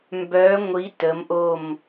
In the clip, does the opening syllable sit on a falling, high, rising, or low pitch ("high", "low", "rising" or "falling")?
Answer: rising